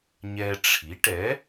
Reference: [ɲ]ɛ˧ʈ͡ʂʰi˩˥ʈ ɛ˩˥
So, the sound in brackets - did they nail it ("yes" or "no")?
yes